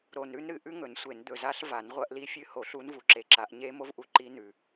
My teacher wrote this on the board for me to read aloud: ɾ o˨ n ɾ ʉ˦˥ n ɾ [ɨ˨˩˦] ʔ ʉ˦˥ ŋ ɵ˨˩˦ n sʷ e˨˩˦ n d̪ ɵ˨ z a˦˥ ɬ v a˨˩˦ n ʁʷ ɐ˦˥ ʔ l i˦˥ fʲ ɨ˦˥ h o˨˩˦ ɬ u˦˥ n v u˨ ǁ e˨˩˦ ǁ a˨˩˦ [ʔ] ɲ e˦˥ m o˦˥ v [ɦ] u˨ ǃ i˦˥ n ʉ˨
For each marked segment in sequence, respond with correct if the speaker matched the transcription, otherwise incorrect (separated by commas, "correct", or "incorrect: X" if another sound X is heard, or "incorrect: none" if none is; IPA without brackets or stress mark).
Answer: correct, correct, incorrect: ʔ